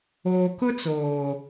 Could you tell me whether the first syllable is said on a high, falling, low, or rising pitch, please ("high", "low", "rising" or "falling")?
low